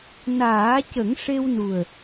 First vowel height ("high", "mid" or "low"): low